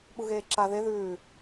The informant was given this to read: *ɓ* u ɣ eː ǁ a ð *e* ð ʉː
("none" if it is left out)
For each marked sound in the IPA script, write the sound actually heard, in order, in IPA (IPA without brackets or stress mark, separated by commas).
ɓ, e